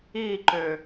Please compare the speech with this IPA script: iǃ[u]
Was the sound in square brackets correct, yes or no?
no